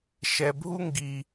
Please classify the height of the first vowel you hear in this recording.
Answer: mid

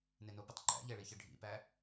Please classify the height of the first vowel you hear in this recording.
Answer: mid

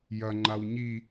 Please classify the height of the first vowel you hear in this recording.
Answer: low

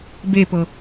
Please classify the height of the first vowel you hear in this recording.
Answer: mid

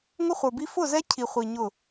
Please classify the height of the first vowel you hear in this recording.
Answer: high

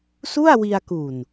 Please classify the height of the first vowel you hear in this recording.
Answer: high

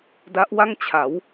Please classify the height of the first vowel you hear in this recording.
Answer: low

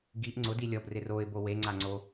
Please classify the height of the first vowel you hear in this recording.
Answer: high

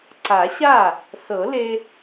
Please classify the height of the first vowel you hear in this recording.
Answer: low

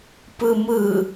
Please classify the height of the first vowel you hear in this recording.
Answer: high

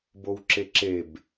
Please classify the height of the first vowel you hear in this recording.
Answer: mid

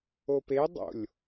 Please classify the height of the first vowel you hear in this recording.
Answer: mid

